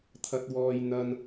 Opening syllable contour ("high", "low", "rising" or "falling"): high